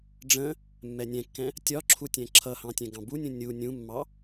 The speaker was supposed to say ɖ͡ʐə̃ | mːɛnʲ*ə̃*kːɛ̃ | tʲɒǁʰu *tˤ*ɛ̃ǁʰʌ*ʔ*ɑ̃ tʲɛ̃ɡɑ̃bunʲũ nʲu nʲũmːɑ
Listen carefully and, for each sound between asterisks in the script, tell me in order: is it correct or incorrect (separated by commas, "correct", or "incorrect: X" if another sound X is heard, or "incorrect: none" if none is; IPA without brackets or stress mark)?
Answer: incorrect: ɛ̃, incorrect: tʲ, incorrect: h